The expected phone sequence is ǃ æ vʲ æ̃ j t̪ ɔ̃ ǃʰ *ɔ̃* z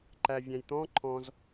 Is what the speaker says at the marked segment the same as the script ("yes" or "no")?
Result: yes